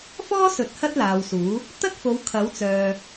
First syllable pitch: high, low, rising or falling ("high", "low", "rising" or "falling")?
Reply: high